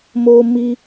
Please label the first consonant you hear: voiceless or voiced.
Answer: voiced